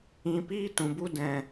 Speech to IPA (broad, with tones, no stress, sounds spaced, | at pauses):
ĩ˧ p iː˦ t ũ˨ b u˦ d ɛ̃˨